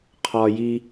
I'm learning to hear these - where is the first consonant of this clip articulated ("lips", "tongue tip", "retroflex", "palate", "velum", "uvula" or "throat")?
uvula